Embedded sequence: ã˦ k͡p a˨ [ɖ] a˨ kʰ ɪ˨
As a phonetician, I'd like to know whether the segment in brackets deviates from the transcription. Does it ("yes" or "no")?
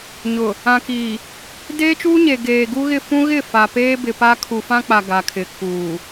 yes